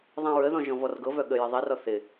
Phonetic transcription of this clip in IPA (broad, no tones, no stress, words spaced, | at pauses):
ðˤɛ̃ɹəðɔ̃ ʒɔ̃vɔrɡɤvœ ɠəjɪ ðˤirɔ θɪ